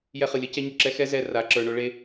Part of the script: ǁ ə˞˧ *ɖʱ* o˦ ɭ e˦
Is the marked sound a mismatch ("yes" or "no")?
yes